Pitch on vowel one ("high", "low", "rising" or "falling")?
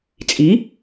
rising